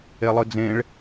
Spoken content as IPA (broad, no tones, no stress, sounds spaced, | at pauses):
e lˠ ɯ d͡z ẽ ɭ